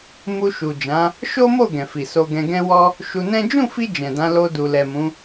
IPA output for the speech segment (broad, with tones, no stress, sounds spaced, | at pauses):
m u˧ ʃ u˨ d͡ʒ ã˨˦ | ʃ o˦ m o˦˨ ɡ ɛ̃˨ f i˨ s o˧ ɡ ɛ̃˧ ɡ ɛ̃˧ w ɔ˧ | ʃ u˧ n ɛ̃˦ d͡ʒ ũ˦˨ f i˧ d͡ʒ ɛ̃˨ d ã˨˦ l o˧ d u˨ l ɛ˨ m ũ˨˦